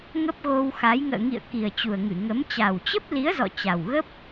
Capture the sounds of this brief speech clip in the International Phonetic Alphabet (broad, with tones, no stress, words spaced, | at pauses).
ŋə˦˥p̚ɣo˧wxa˨˦j ŋə̰ː˧˨ŋḭ˧˨ə̯ ki˨˩ə̯t͡ɕu˨˩ə̯ŋɨ˧˩ŋə˨˦m t͡ɕa˨˩wt͡ɕə˦˥p̚li˨˦ə̯zɔ̰˧˨ t͡ɕa˨˩wɣə˦˥p̚